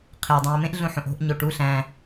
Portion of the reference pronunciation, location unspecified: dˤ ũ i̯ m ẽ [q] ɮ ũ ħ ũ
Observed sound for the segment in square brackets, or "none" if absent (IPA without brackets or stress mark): ʔ